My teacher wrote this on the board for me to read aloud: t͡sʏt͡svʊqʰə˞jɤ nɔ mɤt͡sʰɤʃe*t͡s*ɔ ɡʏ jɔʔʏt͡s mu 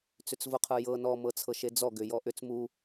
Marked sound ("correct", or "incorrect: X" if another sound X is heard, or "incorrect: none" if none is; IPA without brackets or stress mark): incorrect: d͡z